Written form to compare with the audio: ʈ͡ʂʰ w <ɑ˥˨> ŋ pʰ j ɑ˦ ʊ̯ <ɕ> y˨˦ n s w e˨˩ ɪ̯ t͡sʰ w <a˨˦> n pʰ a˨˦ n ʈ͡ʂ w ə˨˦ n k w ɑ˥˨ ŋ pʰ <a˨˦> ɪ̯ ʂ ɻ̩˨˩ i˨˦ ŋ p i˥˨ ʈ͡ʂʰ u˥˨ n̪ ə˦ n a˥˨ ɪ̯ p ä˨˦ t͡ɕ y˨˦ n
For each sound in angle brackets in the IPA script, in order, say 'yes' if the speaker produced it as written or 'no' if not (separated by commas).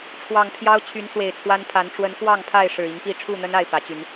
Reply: no, no, no, no